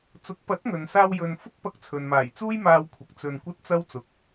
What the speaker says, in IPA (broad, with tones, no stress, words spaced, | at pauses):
t͡sʊ˨˥k̚pɐ˨˥t̚ŋɵ˨nsaː˧w jɵ˧n fʊ˥k̚pɐ˧k̚t͡sʰɵ˨n maː˨˩jt͡suː˥jmaː˧wkʷʰɐ˨k̚ t͡sɵ˧nkʷɐ˥t̚ t͡sɐ˧w t͡sʊ˨k̚